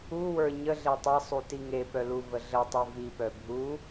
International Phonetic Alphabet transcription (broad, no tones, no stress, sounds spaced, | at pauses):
u w ə˞ ɲ ə ɮ e tˤ e sˤ u t i ŋ e p œ l u v ə ɮ ə tˤ i v i p œ bʱ u